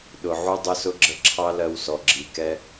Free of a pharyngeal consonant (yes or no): no